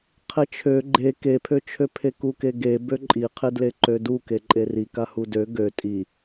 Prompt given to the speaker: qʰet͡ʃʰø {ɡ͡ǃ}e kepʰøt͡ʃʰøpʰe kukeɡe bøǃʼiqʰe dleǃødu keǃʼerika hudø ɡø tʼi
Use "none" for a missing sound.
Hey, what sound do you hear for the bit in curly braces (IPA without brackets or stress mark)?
ɡ͡ǃ